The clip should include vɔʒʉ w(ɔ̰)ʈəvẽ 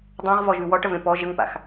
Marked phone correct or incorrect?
incorrect